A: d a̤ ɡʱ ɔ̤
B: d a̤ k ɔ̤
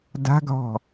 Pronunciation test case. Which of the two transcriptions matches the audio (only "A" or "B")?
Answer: A